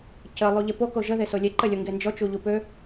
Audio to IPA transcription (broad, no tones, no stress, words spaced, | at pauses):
cə lˠuʎepo koʒə ðesolʲe ǃəlʲoŋɡend͡ʒɔ t͡ʃuʎupø